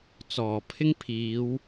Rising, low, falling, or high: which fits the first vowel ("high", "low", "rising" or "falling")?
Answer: low